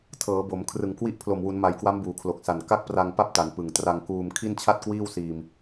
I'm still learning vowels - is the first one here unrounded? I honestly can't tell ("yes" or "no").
yes